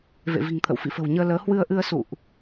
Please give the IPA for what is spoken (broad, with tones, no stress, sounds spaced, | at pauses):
v ḛ˧˨ v i̤˨˩ ŋ t̪ʰ ə̰˧˨ w f ḭ˧˨ f ə̤˨˩ w ɲ əː˧ l əː˨˦ h w ɨ˧ ə̯ ʔ ɨ˧ ə̯ s ṵ˧˨ ʔ